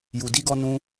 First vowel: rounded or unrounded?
rounded